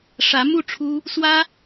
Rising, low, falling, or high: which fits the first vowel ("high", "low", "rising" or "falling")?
rising